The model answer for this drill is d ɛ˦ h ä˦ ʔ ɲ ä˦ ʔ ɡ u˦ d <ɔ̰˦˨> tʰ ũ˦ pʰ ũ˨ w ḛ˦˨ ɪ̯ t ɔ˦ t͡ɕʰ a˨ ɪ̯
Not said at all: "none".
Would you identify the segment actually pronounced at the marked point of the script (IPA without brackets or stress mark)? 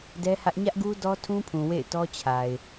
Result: ɔ˦